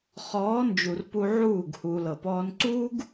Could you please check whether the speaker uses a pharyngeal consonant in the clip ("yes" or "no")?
yes